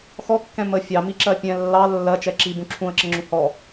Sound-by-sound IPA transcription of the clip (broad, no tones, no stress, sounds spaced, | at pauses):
x ɔ kː ɛ̃ m ə fʲ ɑ m i ǁ ɜ pʲ ɛ̃ lː ɑ lː ɜ t͡ʃ ɛ ǁ i b ũ ǁʰ ũ ə̯ ǁ ə ŋ͡ǁ ũ h ɔ